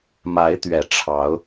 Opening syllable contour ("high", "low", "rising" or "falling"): rising